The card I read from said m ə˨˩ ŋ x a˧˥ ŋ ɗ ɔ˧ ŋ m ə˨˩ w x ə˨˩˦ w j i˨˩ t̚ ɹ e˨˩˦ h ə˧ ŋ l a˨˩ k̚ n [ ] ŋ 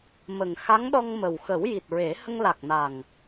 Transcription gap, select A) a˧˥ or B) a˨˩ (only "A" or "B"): B